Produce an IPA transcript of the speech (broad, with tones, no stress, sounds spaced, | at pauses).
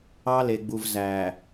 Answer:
ɑ˦ l e˨ ɡ͡b u˨ v z æ˨